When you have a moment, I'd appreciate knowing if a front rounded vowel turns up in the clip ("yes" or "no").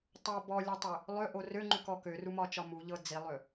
yes